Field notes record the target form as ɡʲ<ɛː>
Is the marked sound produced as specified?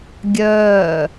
no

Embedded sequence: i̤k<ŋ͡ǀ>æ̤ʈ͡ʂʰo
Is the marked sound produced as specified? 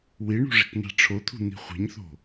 no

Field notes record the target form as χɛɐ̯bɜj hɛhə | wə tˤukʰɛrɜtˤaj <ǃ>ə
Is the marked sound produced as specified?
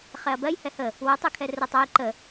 yes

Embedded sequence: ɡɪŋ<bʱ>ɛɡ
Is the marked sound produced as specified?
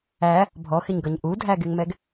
no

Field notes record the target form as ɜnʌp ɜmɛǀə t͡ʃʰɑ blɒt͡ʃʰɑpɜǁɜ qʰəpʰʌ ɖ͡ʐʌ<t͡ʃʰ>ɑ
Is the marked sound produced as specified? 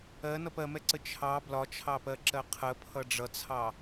no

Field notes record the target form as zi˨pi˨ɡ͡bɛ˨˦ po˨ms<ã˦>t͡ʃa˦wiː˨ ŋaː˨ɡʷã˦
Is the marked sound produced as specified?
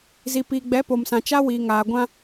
no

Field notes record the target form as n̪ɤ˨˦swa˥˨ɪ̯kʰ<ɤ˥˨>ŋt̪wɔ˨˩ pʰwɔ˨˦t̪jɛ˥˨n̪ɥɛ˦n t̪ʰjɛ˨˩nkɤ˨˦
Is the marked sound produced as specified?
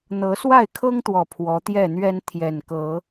no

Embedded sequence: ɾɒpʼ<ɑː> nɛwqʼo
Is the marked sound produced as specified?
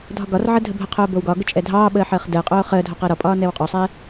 no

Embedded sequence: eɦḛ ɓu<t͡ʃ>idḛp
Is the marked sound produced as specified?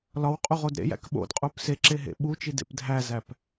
yes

